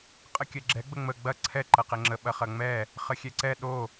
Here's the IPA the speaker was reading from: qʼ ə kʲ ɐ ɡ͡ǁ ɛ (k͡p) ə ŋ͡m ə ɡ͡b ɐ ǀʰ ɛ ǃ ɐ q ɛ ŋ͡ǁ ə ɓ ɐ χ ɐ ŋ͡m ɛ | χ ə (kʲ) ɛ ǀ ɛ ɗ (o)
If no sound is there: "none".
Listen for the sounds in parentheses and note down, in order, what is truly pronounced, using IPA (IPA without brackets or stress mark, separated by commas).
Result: ɡ͡b, xʲ, o